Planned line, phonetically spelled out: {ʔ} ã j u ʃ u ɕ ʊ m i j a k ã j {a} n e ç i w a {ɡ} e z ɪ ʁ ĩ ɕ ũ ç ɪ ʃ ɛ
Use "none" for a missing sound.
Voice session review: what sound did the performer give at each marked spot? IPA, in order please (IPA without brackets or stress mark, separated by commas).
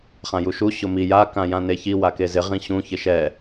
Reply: χ, ã, k